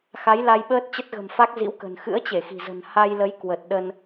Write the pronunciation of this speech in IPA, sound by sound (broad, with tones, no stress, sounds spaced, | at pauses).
x a˨˦ j l a˧ j ɓ əː˦˥ t̚ t͡ɕ ə˦˥ t̚ ɣ ə̤˨˩ m f a˦˥ k̚ z ḭ˧˥ w k ə̤˨˩ n x ɨ̰˧˥ ə̯ t͡ɕ e˧˩ x i̤˨˩ z ə̤˨˩ n h a˧ j l ə˨˦ j k w ə˨˩ t̚ ɗ ə˧ n